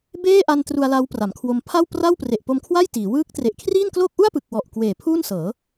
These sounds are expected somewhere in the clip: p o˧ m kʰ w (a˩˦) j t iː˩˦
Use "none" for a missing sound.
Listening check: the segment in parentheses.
a˥˩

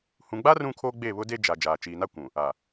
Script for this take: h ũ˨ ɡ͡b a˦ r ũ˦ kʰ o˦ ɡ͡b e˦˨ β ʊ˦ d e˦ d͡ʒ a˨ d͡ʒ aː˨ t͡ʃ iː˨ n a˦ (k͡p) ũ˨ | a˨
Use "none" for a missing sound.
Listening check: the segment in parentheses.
kʷ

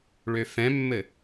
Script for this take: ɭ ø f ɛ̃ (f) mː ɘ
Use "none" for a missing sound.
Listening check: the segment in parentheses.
none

